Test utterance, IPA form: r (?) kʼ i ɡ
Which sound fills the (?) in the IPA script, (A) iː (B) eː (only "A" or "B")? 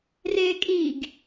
B